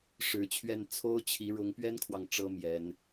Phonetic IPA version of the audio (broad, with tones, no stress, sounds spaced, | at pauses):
ʂ ɻ̩˧˥ t͡ɕʰ ɥ ɛ˥˩ n t͡sʰ o˥ ʊ̯ t͡ɕʰ i˧˥ ɻ ʊ˧˥ ŋ p ɥ ɛ˥ n kʰ w ɑ˨ ŋ ʈ͡ʂ ɤ˥ m j ɛ˧˥ n